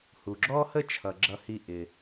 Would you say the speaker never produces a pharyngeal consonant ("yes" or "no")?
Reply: yes